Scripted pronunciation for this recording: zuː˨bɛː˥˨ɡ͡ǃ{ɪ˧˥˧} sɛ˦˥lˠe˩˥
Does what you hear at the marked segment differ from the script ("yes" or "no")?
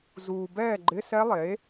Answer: no